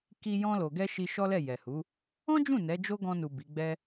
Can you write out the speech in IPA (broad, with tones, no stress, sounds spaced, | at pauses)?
k i˧ j ɔ̃˧ l o˨ ɡ ɛ˧ ʃ i˧ ʃ ɔ˦ l ɛ˦˨ j ɛ˨ h u˨˦ | ɔ̃˦ d͡ʒ ũ˦˨ n ɛ˨˦ d͡ʒ o˦ ɡ ɔ̃˧ n u˨ b i˨˦ ɡ͡b ɛ˦